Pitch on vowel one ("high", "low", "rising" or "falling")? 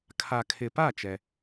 low